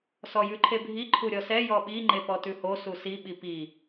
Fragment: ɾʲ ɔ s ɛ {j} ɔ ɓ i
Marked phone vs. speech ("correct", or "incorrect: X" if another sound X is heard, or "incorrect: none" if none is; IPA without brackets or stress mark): correct